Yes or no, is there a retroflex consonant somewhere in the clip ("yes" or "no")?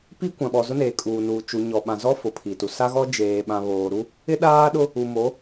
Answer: no